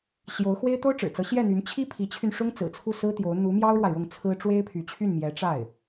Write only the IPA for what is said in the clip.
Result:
ɕjo˧˥ʊ̯ xwe˥ɪ̯t̪o˥ʊ̯ʈ͡ʂɻ̩˨˩ t͡sɤ˧˥ɕjɛ˥˩n̪y˧˥n t͡ɕʰi˥pʰi˧˥t͡ɕʰy˧n ʂʊ˥ŋt͡sɹ̩˨˩t͡sʰu˥˩ sɹ̩˥t̪jo˧˥ʊ̯ n̪u˧˥ mjɑ˥ʊ̯ɻwa˨ɪ̯ɻʊ˥˩ŋ t͡sʰɹ̩˥ ʈ͡ʂwe˥ɪ̯pʰy˧˥t͡ɕʰy˥˩n mjɛ˧˥ʈ͡ʂa˥˩ɪ̯

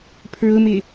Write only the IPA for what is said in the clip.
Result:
pʰɹʊmɪ

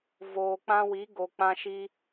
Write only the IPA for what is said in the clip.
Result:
voː˨ k͡pã˧wi˨˦ɡo˨ k͡pã˧ʃiː˧

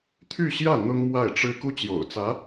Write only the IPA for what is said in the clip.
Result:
t̪ʰy˥˧ɕjä˥˩ n̪ʊ˥ŋ mwa˥˩ɪ̯ʈ͡ʂɻ̩˥ ku˥t͡ɕjo̰˨˩ʊ̯t͡sä˧˥

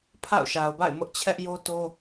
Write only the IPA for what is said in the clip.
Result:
pʰa̰˦˨ʊ̯ʃa˨ʊ̯ba̰˦˨ɪ̯ mʊ˦ʔt͡ɕʰɛ˦ʔ jo˦to˦

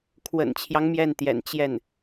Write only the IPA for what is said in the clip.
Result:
kʰwə̰˨˩nt͡ɕʰjɑ˦ŋ mjɛ˥˩nt̪jɛ̰˨˩n t͡ɕjɛ˥˩n

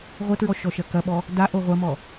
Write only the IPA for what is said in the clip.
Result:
ʁʷɐtɹɔ ʃɔʃɐkɐɓɔ | daʔo ʁʷɐmɔ

